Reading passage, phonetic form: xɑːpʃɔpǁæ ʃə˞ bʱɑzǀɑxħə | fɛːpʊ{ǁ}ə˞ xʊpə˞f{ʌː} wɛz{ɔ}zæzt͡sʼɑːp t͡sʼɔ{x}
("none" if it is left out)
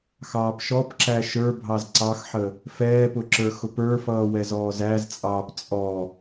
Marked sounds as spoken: ǁ, ʌː, ɔː, none

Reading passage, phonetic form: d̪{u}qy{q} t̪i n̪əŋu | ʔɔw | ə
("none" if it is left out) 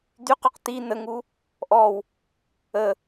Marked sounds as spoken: y, q

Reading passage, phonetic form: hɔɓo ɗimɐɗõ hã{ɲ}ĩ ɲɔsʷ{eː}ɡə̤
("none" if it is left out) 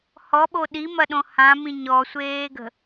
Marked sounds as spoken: m, eː

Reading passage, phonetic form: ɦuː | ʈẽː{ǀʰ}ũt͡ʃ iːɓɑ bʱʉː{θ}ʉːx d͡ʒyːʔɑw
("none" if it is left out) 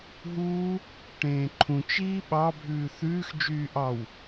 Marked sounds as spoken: ǃʰ, θ

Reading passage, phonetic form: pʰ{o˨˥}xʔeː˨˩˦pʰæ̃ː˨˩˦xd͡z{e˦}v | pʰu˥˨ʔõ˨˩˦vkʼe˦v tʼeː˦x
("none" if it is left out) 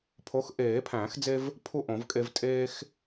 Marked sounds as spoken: o˨˥, e˦

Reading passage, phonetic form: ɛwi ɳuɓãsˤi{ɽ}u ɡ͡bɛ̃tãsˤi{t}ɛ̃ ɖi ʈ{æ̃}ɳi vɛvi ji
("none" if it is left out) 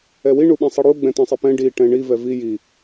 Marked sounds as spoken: ɽ, p, ɛ̃

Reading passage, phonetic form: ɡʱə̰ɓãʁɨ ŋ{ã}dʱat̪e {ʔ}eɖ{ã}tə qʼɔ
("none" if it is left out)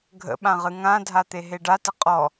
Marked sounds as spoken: ã, ɦ, a

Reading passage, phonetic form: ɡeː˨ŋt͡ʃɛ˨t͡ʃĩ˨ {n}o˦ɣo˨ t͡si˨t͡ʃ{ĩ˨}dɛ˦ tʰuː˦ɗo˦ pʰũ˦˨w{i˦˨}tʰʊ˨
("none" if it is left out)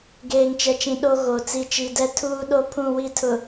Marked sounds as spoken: ɗ, i˨, i˦˨

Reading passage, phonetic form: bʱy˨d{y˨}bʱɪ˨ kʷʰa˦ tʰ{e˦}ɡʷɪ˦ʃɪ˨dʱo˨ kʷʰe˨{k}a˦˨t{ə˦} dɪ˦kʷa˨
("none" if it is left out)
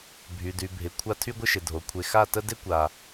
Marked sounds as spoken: y˨, y˦, x, ə˦

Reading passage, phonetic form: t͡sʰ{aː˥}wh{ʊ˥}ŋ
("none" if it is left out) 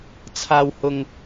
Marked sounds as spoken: aː˧, ʊ˧

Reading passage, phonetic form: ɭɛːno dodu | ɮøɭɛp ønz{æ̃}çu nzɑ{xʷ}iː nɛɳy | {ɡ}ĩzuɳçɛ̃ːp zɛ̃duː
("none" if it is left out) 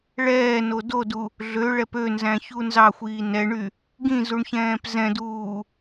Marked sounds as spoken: æ̃, xʷ, ɡ

